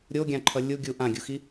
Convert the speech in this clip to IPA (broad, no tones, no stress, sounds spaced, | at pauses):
ɾʲ o ɡʲ ã ǃʰ ʌ lʲ u ɡʲ u ʔ ã ɡʲ u x i